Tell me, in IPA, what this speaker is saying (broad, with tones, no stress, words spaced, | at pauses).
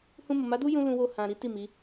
hũ˧mo˨ma˨˦du˦ jũ˦lũ˧wo˧ hã˨ ɾi˨˦ ti˦˨ mi˨˦